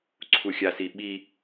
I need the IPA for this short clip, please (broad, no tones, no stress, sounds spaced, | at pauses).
ǀʰ u xʲ a s i ɓ i